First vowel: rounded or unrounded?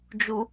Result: rounded